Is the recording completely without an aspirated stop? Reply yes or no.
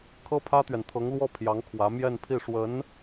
no